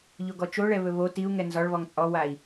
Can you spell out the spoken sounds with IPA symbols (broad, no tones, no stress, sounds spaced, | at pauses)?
ʎ o ɡ ɔ t͡ʃ o ɭ ɛ β ɵ β o t i u̯ ŋ ɛ n z ɒ ɭ β ɔ ŋ t͡sʼ ɔ w a i̯